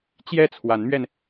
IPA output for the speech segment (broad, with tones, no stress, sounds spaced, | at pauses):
t͡ɕ j ɛ˥˩ t͡sʰ w a˧˥ n m ɥ ɛ˧ n